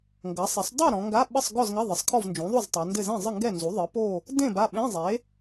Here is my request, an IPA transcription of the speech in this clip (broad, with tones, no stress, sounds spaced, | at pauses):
ŋ ɡ ɐ˩˥ sˤ e˩˥ sˤ dˤ u˥˨ ɾ ɔ̃˩˧ ŋ ɡ a˧˥˧ ɓ ɘ˥˨ sˤ ɡ ɔ˥˨ z ŋ ɐ˧˥˧ ðˤ ɘ˩˥ sˤ kʰ ɔ˥˨ v n d͡ʒ ũ˩˥ ðˤ u˥˨ z tˤ a˩˧ n d ɘ˥˨ z ẽ˥˨ zˤ ɨ˥˨ ŋ ɡ ɛ˥˨ n z u˩˥ ðˤ ɨ˩˥ p o˥˨ | d ẽ˥˨ b a˥˨ ɓ ẽ˧˥˧ zˤ e˩˥